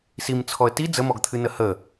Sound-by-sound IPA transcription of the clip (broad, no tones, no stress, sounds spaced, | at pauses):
s i m t͡sʰ ɔ ə̯ t i d͡z ə m ɔ ɡ t̪ʰ ɨ n ə h ə